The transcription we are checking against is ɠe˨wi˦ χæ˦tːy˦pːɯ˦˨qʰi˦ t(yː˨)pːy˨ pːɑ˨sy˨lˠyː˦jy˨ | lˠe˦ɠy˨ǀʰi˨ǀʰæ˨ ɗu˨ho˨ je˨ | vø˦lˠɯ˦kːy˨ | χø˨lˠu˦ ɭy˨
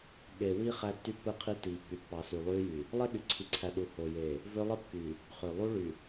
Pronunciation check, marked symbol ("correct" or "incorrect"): incorrect